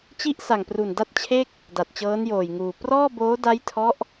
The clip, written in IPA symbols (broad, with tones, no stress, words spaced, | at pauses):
t͡ɕi˥˩ʔ sa˨˩ŋpru˨˩n da˥˩t̚t͡ɕʰe˥˩k̚ | da˨˩t̚t͡ɕɤː˦˥njoː˨˩jŋuː˨˩ prɔː˥˩boː˦˥ da˦˥jtʰɔ˦˥ʔ